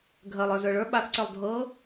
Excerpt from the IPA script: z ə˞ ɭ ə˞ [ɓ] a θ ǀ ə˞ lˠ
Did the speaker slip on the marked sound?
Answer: no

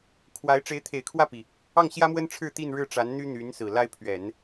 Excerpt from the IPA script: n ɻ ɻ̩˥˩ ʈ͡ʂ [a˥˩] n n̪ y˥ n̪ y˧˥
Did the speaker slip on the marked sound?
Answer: yes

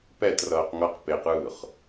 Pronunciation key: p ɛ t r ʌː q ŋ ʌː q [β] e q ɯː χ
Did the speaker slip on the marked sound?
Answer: yes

